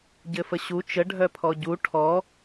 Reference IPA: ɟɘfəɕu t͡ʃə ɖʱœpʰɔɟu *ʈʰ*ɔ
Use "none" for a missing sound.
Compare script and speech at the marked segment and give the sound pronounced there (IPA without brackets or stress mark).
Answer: ʈʰ